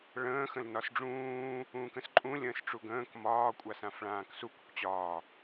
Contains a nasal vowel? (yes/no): yes